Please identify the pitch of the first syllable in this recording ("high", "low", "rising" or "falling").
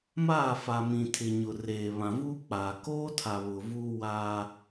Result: falling